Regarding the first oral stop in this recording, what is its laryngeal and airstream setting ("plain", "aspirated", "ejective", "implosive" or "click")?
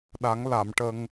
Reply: implosive